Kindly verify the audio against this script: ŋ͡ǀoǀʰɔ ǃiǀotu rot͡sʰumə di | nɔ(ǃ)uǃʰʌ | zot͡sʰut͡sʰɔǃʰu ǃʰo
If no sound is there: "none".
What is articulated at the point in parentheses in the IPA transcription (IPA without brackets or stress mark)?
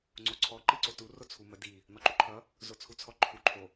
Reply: ǃ